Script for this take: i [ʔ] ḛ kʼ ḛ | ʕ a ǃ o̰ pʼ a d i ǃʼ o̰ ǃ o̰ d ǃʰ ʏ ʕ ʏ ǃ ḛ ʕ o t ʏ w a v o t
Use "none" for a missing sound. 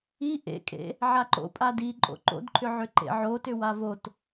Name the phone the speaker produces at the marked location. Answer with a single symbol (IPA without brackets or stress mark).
ʔ